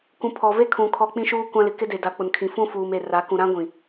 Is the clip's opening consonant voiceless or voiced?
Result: voiceless